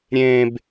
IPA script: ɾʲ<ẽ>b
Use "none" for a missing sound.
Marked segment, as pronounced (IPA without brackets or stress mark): ẽ